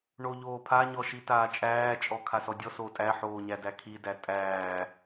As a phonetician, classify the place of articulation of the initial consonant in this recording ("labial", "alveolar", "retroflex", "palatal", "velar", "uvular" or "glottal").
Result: retroflex